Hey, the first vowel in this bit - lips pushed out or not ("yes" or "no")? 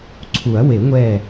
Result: yes